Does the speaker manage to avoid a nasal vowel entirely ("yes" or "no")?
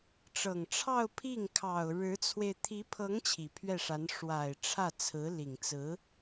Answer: yes